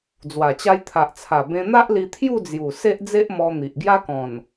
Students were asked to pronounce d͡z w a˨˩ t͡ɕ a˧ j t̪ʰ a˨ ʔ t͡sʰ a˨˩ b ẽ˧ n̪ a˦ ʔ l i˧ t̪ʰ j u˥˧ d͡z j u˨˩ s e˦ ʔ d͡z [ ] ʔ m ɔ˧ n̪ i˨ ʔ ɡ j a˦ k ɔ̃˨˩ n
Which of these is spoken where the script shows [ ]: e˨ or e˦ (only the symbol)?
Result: e˦